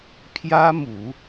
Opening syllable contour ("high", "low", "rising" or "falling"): high